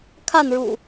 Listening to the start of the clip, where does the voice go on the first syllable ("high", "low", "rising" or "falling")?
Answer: falling